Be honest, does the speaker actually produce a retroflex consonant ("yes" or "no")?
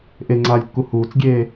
no